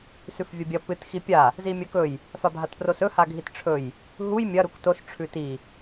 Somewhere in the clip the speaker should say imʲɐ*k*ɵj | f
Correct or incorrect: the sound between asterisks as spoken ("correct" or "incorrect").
correct